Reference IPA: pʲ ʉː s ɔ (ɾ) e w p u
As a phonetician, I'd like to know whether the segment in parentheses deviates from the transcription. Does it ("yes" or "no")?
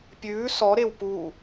no